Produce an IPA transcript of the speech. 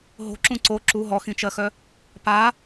ɦ o̤ ǁ ũ ǀ o ǁ u ɦ ɔ x ĩ t͡ʃ ɜ x œ | p a

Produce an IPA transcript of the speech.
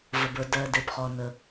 v ə˩ b ə˞˩ d ɜ˩ d e˩ p χ ɔ˩ n ə˩

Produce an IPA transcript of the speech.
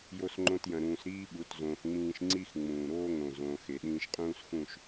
j o˦ s ŋ͡ǃ õ˦ t j ɐ̃˧ ɾ ũː˧ s ɾ iː˦ ɓ u˨˦ t z õː˧ x ŋ͡m ĩː˦ ʃ ŋ͡ǀ i˦ x ŋ͡m ũː˨ ɾ oː˦ ŋ õ˨ z õː˧ x e˨ ɗ ĩː˧ ʃ qʼ ũː˦ s x ũ˦˨ ʃ

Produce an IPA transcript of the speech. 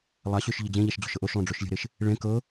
lˠ a ɕ ø ʃ ʎ ə d͡ʑ ẽ ʎ a ʃ d͡ʑ o̤ ʃ ɤ ʔ o ʃ lˠ õ ɖ͡ʐ o ʃ lʲ ə̤ ɾ e ʃ | ɭ ẽ k ɤ

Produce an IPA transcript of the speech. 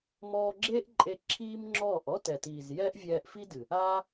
m ɔː˧ ɡ͡ǁ eː˦ ʔ ǃʼ e˧ ǁʰ iː˦ m ŋ͡ǁ ɔː˦˨ ʔ ɔ˦ t ɛ˨ t iː˨ z j ɛː˦ ʔ vʲ ɛː˧ ʔ f i˦ d ɨ˨ | aː˦

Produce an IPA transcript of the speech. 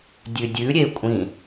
dʲ ʉ dʲ ʉ ɾʲ e kʷʼ ĩ

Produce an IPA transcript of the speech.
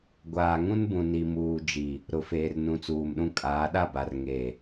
ɡʷ aː˨ ŋ ũ˦ n b ũ˨ n i˨ m uː˨ d͡ʒ i˨ | ɾ ʊ˨ f eː˨ r n ũ˨˦ t͡s uː˨ m ɗ ũ˦ kʼ aː˨˦ ɗ a˦˨ b a˨ r ŋ e˨

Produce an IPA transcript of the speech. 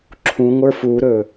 ǁʰ ũ ŋʷ ə˞ f u ɾ ɵ

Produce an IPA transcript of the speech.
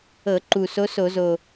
ɤ˧˩˧ ǃ u˨˩ s o˧˥ s o˧˩˧ z o˨˩

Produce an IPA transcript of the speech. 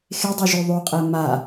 x e dˤ ɘ ʒ o ðˤ o qʼ ɛ m a

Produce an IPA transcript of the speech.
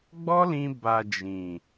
ɡ͡b ɔ˦ l ĩ˧ b a˨ d͡ʒ ĩ˨

